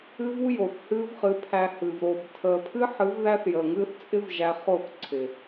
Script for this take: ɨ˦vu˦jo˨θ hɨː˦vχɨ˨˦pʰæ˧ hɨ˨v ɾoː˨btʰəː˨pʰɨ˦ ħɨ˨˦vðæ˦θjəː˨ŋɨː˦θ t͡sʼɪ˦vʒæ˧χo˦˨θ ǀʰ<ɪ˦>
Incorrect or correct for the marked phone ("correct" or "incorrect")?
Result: incorrect